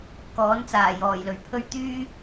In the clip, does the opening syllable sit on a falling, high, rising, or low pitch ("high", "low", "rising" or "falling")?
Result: rising